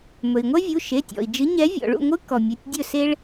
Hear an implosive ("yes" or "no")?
no